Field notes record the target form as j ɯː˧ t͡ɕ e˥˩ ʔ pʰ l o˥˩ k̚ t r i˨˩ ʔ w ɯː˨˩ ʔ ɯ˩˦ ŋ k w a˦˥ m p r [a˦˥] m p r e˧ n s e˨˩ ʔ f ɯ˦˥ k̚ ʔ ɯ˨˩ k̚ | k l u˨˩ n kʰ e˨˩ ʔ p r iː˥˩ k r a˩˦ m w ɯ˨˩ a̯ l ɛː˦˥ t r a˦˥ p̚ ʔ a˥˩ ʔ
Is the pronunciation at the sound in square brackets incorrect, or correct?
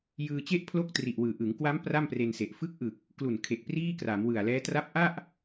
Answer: incorrect